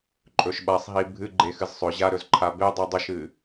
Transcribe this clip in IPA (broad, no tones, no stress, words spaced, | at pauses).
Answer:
ǃʼɵʃɓasˤɦi bʱɨɡ͡ǃe xɨzsˤɵʑa ɾɵzǃʰabedˤi dˤɵʃɨ